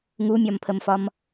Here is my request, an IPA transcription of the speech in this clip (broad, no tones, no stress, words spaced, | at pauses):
ŋumʲɒmpʰəmfɒm